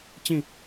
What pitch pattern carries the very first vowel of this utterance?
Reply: falling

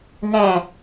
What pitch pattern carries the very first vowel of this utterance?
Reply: low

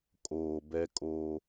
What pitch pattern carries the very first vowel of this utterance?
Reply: low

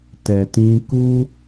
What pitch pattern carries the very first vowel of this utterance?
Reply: low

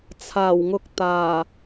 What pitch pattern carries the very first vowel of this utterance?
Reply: low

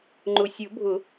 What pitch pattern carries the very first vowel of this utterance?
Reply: low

